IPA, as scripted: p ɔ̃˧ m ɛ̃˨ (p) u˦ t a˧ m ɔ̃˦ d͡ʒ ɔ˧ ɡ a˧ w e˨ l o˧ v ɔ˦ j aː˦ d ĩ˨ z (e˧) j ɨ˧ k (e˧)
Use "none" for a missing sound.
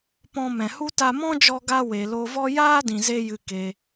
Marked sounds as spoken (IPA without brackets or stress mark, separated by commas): h, e˧, e˧